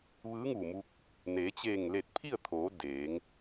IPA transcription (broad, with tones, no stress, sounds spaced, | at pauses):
ʋ ɯː˧˥ ŋ uː˧˩ m u˧ k̚ | n eː˩˧ t͡ɕ eː˧˩ ŋ l e˧˩ t̚ pʰ i˥˨ ə̯ t̪ʰ oː˩˧ d eː˩˧ ŋ